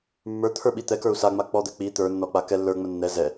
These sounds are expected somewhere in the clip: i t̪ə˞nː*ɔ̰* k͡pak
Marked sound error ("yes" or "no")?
yes